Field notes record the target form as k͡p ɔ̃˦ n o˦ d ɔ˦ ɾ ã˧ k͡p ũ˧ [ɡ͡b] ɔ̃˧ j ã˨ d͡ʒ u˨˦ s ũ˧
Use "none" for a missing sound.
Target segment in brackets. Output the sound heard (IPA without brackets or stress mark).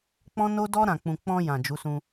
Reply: k͡p